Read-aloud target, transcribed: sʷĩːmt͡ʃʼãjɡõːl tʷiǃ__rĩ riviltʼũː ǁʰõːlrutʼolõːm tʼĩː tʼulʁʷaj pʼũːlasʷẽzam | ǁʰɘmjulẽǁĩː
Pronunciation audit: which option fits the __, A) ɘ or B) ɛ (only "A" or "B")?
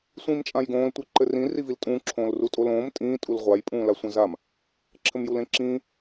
A